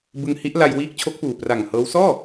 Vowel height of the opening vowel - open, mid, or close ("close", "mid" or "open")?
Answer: close